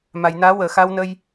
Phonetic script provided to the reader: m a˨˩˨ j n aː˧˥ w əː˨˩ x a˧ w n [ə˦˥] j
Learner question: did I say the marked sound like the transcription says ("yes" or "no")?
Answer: no